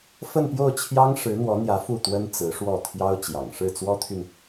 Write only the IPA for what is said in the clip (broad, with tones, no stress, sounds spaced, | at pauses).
f ə˥˧ n p j o˥˩ ʊ̯ t͡ɕʰ j ɑ˥ ŋ ʂ ɻ̩˧˥ n̪ w ɔ˧˥ n̪ j ä˧˥ f u˥˩ t̪ w ə˥ n t͡s ɹ̩˧˥ ʂ w ɔ˥˩ t̪ʰ j ɑ˥ ʊ̯ t͡ɕ j ɑ̰˨˩ ŋ ʂ ɻ̩˥˩ t͡s w ɔ˥ t̪ʰ y˨ n